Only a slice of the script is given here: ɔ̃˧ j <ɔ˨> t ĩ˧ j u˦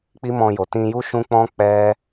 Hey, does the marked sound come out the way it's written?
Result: no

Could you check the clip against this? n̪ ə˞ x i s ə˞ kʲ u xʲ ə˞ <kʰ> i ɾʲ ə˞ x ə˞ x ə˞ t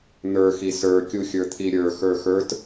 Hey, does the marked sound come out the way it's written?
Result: no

